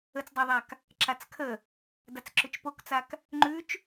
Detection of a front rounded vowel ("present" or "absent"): present